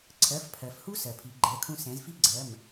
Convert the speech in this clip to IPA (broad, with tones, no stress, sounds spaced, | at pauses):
ǀʰ ɜ˩˧˩ f pʰ ɜ˩ f h u˦ s ɜ˩ pʰ i˩˧ ɡ͡ǃ ɛ˩˧˩ kʰ ũ˦ s ɛ̃˩˧ z f i˦ ɡ͡ǀ ɜ˩˧˩ m